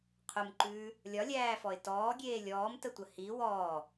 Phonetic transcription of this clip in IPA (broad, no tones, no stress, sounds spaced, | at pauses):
qʰ ʊ m ǃ ʉː | lʲ ɒ lʲ æː f ɔ ɪ̯ t ɔː ɡʲ eː lʲ ɔː m t ə tʷ ə h i w ɔː